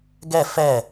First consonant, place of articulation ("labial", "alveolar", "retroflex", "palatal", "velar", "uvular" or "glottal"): velar